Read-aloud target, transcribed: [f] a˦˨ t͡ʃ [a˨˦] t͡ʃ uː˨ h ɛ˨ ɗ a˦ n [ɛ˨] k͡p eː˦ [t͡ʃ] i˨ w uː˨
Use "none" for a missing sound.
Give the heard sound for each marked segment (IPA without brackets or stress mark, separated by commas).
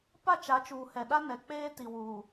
p, a˨˦, ɛ˨, t